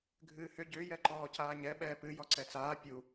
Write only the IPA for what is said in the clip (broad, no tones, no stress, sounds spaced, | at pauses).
ɡʱ ɨː h ʏ ɟ ʏː j ɛ ǃ ɔː c aː ɲ ɛ ɓ ɛː p ɨ j ɔ ǀ ɛ t͡s aː pʲ u